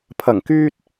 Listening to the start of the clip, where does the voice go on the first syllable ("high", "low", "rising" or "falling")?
low